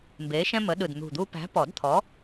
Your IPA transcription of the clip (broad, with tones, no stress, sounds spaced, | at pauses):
m b e˨˥ ʃ ɛ̃˥ m ə˨˥ ɗ ɯ˨˩ d n̪ ṳ˨˩ d̪ u˧ p æ̤˨˥ p ɔ˨˩˦ d t̪ʰ ɔ˨˥